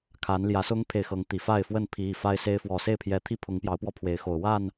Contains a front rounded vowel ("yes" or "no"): no